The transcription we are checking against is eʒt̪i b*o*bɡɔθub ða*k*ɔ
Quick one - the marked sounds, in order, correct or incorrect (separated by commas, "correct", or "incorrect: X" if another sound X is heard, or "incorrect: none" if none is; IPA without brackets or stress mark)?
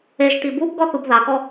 incorrect: u, correct